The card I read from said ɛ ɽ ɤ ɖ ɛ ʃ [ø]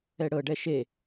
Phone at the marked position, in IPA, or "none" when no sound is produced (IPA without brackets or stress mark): e